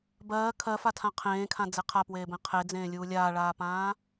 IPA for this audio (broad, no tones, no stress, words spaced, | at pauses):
bɜː kʰɜfatʰã qʰẽːkʰãd͡ze qʰapweːbẽ qʰed͡zẽːlʲuː lʲaːɭaːpãː